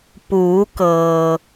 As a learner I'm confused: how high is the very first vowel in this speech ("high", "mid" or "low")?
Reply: high